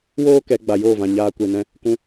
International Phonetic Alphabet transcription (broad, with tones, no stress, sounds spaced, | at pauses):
w oː˦ k ɛ˨˦ ɡ͡b a˨ j oː˦˨ v ã˨ ɲ aː˧ kʷ e˨ n ɛ̃˧ | k ũ˧